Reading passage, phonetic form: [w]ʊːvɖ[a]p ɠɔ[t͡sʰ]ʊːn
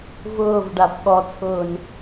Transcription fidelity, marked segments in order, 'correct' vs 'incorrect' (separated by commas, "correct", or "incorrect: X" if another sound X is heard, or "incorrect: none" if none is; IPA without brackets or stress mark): incorrect: v, correct, correct